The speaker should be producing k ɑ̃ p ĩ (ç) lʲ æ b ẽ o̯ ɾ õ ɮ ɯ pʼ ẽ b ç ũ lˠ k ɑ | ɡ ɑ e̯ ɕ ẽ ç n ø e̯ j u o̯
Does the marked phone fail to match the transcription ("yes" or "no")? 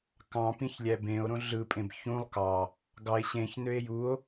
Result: no